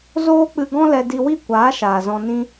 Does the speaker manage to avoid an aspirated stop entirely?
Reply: yes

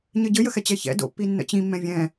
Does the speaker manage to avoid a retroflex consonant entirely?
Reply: yes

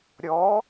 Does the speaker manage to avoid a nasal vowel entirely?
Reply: yes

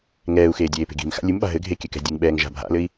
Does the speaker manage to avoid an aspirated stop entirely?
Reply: yes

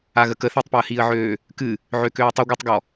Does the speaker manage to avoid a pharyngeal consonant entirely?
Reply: no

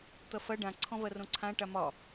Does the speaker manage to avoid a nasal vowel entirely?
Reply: no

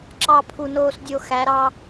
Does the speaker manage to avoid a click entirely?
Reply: no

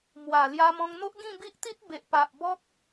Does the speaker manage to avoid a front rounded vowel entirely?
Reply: yes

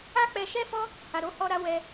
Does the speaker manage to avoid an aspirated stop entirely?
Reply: yes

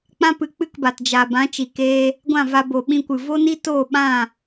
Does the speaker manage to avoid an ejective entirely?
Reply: yes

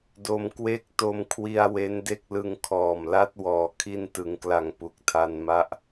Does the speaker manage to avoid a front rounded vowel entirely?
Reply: yes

